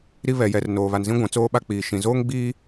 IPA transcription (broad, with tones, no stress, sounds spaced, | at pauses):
ɾ i˦ β ɛ˨ j ɛ˨ r n oː˨ β a˨ n z ĩ˦ ɡʷ ã˨ t͡s oː˦ ɓ a˦ k͡p iː˨ ʃ ĩ˨ z oː˦ ŋ ɡ͡b iː˦